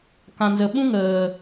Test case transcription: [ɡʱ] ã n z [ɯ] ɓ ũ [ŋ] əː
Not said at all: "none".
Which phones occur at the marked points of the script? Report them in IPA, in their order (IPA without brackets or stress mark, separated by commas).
k, ə, ŋ